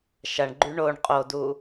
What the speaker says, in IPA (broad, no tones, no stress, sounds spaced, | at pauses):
ʃ ɐ ɳ ɡ͡ǃ y ɳ o ɳ qʼ o d u